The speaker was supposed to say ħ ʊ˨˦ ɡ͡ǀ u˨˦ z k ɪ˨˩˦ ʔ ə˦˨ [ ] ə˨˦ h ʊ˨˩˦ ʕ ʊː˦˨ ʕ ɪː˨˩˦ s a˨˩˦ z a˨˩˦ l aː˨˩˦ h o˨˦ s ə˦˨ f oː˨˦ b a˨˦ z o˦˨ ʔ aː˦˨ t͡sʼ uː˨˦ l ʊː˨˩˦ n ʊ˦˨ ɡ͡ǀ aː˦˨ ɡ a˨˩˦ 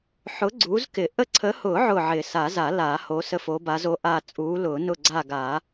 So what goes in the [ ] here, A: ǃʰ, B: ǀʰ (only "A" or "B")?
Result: B